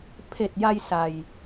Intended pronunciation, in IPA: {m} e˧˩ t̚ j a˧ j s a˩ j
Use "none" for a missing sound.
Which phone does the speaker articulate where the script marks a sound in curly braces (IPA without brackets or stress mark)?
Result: pʰ